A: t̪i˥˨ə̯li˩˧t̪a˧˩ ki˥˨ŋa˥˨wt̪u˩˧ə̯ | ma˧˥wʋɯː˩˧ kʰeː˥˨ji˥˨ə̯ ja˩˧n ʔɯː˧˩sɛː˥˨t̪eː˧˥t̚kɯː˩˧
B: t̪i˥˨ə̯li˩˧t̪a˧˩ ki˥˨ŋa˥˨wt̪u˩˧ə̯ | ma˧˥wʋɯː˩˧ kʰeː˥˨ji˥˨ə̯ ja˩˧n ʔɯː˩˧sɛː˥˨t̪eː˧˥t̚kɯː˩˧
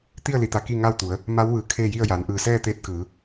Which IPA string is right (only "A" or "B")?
A